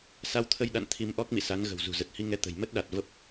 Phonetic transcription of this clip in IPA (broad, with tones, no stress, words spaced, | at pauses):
sa˧wt̪ʰə˧jɗa̰˧˨n t̪ʰi˧mʔɔ˦˥k̚mḭ˧˨sa˨˦n ɣə̤˨˩wzṳ˨˩zə˨˩t̚ hi˧ŋɛ˨˦ t̪ə̤˨˩jmə˦˥t̚ɗa˨˩t̚ və˦˥p̚